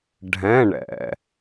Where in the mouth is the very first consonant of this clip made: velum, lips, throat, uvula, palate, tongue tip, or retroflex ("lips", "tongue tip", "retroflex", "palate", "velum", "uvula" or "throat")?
retroflex